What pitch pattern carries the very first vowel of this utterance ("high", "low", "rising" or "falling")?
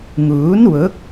rising